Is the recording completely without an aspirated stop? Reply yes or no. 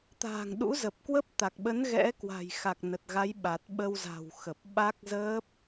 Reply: yes